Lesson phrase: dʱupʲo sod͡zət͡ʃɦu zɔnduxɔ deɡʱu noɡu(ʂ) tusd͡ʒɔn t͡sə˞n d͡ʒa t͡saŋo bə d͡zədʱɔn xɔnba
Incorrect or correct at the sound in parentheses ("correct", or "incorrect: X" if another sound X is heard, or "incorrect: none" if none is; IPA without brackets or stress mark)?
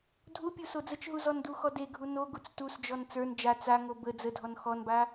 incorrect: t͡s